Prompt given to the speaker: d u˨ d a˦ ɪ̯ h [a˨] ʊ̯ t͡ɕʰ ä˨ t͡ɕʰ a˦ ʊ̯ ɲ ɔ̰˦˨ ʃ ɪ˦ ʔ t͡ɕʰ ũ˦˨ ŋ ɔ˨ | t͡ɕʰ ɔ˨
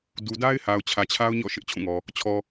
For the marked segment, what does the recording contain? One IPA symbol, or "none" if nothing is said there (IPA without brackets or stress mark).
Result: a˨